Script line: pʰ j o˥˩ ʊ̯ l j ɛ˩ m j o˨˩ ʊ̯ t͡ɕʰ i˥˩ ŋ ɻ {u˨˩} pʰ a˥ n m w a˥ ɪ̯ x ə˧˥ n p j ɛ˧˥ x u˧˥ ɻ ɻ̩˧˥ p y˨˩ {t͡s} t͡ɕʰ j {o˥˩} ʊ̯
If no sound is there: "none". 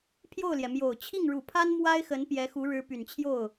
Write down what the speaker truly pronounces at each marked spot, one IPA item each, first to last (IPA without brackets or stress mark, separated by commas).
u˨˩, n, o˥˩